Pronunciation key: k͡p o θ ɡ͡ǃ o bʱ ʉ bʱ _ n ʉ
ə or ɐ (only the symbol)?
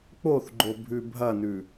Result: ɐ